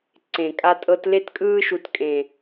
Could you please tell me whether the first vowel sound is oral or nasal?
nasal